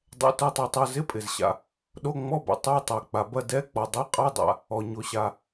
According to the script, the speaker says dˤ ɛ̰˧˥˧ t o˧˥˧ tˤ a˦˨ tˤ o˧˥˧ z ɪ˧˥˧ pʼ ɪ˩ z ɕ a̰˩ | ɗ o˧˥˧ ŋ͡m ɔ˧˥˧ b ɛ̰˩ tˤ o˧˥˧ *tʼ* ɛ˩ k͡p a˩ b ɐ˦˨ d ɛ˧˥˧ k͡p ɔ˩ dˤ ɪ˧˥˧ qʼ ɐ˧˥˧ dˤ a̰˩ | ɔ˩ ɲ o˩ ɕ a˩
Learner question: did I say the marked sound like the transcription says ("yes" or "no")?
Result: no